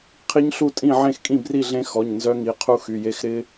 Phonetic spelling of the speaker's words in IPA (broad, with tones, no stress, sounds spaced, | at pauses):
qʰ i˦˥ ɲ ɬ u˥˨ tʼ ĩ˥˨ ʕ ẽ˥˨ x kʼ ĩ˥˨ b r i˥˨ ɮ ẽ˦˥ x ɔ˩˧˩ ɲ n z œ˦˥ ŋ i˩˧˩ qʰ u˦˥ x y˩˧˩ j e˦˥ x ɾ ɪ˦˥